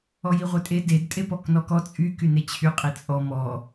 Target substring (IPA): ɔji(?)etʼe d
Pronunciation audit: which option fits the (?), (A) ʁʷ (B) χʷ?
A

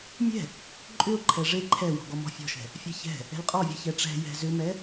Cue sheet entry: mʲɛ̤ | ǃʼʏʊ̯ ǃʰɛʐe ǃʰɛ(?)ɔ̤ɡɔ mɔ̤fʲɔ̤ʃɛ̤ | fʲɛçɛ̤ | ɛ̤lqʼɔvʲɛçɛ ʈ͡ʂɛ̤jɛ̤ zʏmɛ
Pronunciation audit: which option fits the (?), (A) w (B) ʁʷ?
A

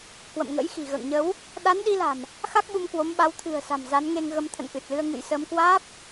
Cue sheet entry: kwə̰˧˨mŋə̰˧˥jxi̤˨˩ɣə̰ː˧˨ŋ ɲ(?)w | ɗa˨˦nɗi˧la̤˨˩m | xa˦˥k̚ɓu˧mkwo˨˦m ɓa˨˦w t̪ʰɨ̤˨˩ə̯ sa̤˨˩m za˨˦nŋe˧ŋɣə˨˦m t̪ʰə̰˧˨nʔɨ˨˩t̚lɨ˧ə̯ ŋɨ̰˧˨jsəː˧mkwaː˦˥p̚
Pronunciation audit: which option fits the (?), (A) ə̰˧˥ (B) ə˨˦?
B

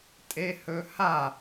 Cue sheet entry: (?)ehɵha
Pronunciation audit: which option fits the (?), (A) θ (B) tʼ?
B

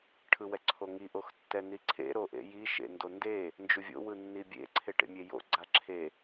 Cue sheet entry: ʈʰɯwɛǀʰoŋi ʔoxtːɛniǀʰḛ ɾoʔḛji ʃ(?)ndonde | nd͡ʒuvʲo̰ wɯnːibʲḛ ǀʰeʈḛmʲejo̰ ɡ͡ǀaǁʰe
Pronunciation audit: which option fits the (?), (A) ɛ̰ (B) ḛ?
B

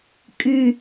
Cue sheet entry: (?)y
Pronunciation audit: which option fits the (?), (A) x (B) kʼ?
B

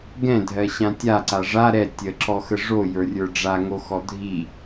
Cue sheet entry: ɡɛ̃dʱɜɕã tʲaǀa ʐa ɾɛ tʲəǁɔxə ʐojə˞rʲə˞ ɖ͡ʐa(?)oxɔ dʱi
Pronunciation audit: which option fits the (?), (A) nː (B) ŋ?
B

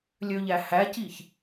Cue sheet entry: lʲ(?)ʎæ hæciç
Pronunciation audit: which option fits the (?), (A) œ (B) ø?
B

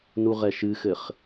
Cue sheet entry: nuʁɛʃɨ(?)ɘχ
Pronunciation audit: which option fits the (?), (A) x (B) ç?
A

